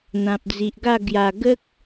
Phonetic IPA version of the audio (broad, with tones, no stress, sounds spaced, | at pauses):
n̪ ã˨ p̚ d͡z i˨ ʔ ɡ a˥˧ ɡ j a˨˩ ɡ ə˦ k̚